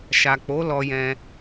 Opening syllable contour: low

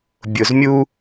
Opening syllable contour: low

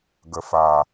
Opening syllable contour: low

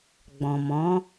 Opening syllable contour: low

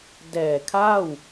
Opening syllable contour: low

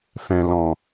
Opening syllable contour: low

